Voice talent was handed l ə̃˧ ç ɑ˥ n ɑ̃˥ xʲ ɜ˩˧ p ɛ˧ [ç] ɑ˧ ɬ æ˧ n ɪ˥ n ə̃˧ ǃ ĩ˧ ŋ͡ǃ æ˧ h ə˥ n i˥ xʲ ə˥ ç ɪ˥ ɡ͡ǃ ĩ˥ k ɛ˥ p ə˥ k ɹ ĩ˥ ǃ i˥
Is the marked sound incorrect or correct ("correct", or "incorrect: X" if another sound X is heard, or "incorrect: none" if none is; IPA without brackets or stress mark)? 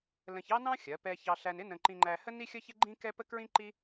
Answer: correct